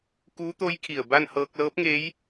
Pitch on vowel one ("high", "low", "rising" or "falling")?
rising